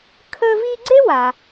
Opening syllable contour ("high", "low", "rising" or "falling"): high